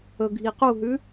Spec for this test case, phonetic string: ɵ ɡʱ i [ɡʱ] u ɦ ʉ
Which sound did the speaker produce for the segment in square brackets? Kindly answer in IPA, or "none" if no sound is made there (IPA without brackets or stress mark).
q